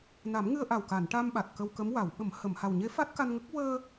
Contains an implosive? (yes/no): yes